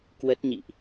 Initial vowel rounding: unrounded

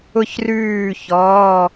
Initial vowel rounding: rounded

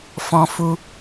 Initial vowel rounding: rounded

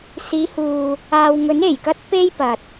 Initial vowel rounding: unrounded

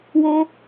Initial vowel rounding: rounded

